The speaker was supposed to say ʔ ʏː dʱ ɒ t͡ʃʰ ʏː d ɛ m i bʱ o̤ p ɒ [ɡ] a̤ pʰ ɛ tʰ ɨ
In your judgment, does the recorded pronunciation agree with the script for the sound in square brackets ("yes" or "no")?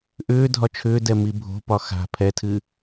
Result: no